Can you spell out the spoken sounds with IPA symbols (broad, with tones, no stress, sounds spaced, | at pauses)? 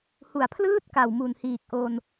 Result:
h u˨˩ a̯ pʰ l ɯː˥˩ t̚ k a˨˩ w m u˨˩ n h iː˨˩ k̚ ʔ o˧ n